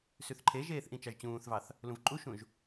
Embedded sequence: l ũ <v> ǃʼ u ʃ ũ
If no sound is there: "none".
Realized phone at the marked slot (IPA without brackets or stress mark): v